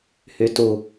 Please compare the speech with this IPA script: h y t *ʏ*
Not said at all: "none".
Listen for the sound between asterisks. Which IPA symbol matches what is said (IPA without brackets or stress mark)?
u